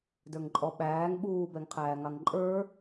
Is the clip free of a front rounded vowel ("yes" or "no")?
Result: yes